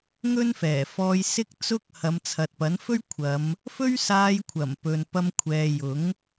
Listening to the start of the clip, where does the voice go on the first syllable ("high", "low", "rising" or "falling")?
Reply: high